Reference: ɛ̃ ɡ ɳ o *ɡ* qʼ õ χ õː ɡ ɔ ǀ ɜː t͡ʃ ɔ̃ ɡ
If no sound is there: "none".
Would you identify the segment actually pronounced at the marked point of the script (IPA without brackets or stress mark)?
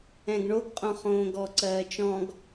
ɡ